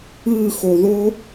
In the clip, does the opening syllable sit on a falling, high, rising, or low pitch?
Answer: falling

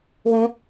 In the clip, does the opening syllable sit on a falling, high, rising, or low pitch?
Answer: high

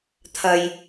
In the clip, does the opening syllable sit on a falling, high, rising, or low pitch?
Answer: low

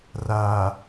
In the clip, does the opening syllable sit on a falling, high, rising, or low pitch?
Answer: low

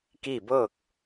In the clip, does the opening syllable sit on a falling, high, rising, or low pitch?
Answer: falling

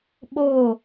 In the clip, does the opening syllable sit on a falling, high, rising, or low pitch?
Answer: falling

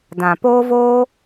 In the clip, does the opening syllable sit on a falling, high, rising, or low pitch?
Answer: low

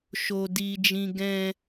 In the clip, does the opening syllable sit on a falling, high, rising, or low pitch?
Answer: high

